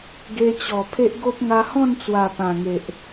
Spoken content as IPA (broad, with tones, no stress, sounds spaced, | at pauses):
ɡ e˧ t͡ɕ ɔ˨˩ pʰ e˦ ʔ ɡ o˦ p̚ ŋ a˧ h ɔ̃˥˧ n t͡s w a˨˩ p ã˨˩ ŋ e˨ ʔ